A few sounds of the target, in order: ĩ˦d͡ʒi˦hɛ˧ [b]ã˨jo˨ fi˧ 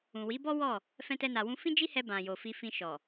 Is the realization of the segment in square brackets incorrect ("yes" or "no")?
no